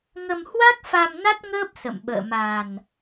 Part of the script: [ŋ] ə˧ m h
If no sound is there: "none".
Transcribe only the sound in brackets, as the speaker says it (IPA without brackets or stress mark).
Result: ŋ